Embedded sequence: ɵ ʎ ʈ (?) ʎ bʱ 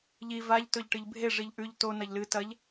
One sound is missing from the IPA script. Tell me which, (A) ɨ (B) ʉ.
A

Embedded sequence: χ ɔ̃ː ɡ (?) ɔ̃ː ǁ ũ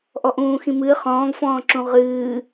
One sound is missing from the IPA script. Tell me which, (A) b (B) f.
B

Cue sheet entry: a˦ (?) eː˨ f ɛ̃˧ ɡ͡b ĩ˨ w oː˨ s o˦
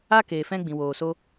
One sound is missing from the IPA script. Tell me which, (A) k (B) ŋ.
A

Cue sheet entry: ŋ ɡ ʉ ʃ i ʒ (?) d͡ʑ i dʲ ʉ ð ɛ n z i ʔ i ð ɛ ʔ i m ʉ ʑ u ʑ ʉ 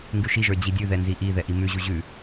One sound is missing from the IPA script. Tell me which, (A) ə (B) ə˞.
B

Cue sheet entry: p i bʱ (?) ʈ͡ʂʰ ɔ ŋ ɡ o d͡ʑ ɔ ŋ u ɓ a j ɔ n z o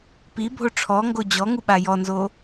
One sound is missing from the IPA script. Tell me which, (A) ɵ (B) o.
B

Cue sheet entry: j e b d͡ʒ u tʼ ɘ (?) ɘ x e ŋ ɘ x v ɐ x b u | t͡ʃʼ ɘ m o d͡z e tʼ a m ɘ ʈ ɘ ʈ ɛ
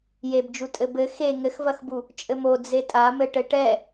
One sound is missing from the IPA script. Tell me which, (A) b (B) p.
A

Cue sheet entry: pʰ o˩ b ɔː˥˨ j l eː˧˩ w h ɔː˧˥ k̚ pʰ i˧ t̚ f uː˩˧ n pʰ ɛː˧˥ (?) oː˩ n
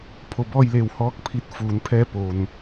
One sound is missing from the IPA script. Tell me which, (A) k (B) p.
B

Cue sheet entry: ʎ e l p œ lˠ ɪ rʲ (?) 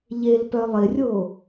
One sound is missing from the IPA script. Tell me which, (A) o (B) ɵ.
A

